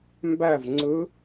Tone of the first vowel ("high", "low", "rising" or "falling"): falling